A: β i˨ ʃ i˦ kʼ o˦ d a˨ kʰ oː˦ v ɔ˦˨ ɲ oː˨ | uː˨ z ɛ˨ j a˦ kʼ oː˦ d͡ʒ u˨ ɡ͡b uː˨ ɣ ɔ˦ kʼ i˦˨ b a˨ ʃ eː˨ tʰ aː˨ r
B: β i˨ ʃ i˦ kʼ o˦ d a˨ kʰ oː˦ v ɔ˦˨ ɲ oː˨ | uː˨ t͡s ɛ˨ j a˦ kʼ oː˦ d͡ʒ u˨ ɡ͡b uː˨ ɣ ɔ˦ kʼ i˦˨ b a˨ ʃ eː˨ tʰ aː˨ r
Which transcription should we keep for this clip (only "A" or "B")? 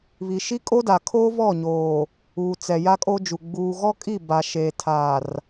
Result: B